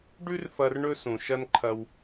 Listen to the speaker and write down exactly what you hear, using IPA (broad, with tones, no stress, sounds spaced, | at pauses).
ɖ ʉ˥ r f ɐ˧ r ɳ ɵ˧ s ũ˩ ʃ ɐ˥ n ǃʰ ɐ˧ w